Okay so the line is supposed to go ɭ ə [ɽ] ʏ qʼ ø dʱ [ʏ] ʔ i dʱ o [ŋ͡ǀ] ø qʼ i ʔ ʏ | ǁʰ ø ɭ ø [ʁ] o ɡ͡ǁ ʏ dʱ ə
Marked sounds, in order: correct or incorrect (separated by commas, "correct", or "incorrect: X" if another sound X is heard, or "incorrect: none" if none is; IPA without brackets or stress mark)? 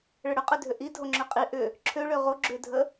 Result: correct, correct, incorrect: ŋ͡ǁ, correct